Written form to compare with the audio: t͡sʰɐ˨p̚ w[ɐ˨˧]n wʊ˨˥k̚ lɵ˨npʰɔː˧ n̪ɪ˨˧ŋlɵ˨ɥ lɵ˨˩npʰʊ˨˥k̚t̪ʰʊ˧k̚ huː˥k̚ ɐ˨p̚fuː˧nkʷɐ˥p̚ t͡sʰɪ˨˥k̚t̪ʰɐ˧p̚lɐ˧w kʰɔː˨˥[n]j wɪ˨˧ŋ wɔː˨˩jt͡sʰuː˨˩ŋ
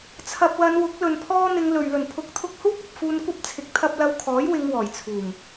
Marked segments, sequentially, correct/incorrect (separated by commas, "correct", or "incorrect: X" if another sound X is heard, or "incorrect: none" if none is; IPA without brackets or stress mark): correct, incorrect: none